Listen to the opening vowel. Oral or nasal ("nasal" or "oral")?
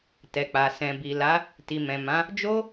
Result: oral